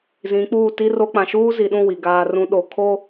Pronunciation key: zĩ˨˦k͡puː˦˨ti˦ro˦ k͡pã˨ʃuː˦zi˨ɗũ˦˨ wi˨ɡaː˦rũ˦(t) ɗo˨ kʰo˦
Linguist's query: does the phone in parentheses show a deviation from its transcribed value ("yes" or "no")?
yes